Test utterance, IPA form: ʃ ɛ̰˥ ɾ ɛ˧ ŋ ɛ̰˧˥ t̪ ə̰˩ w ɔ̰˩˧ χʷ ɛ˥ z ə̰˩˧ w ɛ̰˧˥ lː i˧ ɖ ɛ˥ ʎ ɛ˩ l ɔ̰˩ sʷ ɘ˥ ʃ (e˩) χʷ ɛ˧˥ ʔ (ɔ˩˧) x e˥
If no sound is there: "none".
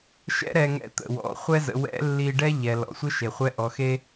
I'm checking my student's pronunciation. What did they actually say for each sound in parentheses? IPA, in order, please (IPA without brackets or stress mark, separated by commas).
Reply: e˩, ɔ˩˧